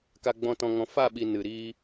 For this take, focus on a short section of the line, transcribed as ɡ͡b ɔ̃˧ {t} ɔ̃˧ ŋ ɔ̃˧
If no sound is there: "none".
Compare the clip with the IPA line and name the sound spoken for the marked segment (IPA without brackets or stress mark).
t